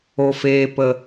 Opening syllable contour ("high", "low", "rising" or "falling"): low